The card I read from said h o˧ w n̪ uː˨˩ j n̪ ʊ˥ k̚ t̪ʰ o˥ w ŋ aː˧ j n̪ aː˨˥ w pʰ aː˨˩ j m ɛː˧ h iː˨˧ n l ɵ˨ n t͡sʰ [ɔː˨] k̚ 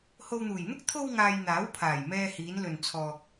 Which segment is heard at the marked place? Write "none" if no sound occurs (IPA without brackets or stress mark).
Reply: ɔː˨